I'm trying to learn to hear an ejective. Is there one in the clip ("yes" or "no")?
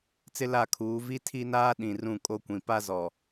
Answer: yes